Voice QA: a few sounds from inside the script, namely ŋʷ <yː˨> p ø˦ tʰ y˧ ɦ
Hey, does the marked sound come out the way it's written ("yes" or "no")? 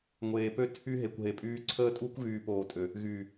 no